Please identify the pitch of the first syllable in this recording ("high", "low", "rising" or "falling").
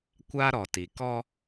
high